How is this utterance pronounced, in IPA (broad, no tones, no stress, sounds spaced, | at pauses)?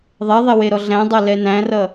ðˤ ɛ ðˤ e w e ɾ ɔ ɮ æ̃ dˤ a l ɛ n æ̃ r ʌ